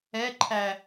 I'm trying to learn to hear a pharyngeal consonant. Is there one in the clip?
no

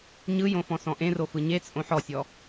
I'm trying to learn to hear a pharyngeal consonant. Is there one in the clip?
yes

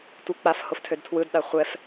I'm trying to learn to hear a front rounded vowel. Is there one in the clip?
yes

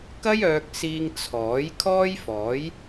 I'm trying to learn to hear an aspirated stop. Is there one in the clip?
yes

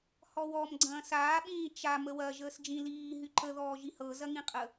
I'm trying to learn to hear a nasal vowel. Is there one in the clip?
yes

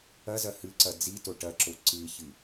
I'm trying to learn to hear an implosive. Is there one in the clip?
no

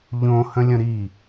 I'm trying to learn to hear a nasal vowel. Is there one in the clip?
yes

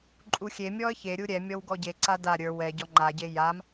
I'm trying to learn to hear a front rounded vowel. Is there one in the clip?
no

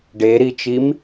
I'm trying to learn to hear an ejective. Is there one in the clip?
no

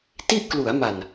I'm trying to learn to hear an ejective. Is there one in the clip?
no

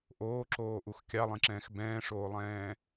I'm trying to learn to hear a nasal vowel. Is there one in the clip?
yes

